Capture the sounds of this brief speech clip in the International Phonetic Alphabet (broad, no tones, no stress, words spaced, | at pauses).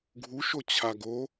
ɡʱu ʃot͡ɕʰaɡo